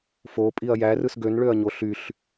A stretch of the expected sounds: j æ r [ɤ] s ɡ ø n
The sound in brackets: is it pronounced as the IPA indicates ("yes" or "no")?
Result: no